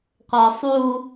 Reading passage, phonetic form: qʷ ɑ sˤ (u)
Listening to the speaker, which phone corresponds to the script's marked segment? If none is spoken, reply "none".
u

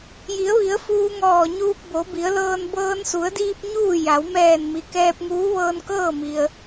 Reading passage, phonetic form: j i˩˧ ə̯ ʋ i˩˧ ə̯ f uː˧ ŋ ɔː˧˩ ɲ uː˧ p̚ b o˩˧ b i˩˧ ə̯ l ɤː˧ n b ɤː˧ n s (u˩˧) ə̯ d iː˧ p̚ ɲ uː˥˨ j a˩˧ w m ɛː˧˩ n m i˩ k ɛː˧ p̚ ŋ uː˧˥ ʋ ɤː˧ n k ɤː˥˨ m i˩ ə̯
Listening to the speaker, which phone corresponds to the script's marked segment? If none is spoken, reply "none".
u˩˧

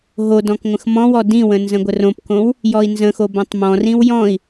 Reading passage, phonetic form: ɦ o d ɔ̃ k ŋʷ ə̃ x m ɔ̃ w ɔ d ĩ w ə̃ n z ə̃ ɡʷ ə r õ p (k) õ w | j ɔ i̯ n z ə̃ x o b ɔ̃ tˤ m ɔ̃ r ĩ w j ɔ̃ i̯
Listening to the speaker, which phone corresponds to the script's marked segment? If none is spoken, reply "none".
k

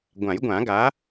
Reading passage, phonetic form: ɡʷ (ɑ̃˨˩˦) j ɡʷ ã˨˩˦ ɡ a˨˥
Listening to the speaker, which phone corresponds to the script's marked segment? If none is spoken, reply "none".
ã˨˩˦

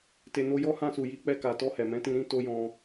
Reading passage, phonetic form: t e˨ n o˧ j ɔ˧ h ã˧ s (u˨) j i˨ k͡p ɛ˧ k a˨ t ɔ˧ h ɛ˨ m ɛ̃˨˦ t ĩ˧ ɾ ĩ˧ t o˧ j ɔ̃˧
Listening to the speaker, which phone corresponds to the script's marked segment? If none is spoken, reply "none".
u˨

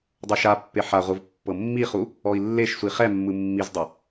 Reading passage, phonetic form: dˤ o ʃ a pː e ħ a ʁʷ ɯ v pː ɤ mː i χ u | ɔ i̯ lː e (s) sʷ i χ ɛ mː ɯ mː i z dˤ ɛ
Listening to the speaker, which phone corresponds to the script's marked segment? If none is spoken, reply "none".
ʃ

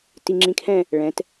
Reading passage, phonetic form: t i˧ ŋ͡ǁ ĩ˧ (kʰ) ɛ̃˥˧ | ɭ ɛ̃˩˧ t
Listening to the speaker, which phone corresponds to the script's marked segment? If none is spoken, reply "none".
kʰ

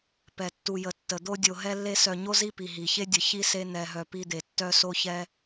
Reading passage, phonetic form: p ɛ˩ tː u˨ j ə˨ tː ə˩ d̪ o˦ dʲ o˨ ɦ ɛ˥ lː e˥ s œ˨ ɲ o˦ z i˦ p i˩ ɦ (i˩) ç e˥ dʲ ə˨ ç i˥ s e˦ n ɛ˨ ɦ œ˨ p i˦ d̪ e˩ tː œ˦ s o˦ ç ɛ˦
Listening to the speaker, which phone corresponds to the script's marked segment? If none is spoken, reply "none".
i˩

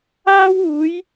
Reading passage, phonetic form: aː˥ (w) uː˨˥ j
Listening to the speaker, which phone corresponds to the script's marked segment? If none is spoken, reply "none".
w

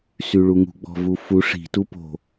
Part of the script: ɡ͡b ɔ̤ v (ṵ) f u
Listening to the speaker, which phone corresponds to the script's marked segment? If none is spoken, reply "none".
u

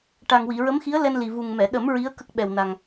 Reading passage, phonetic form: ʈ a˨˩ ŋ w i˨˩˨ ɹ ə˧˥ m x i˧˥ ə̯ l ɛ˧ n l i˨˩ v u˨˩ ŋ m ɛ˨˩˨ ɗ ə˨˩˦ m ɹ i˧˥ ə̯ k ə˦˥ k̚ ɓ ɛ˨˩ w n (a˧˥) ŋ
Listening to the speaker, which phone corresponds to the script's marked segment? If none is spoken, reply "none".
a˨˩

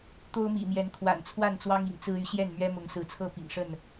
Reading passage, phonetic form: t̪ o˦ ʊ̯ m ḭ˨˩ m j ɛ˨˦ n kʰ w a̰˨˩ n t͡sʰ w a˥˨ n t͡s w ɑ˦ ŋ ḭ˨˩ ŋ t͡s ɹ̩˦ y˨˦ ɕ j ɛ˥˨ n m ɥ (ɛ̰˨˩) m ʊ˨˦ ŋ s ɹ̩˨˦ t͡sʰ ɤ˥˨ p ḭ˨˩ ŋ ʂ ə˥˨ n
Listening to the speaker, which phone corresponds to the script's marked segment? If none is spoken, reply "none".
ɛ˦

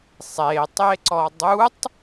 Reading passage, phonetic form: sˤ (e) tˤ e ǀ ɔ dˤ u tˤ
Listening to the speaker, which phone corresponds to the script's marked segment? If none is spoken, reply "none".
e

